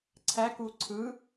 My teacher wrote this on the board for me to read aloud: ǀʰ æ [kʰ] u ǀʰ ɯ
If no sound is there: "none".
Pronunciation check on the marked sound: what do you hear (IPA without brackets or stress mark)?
k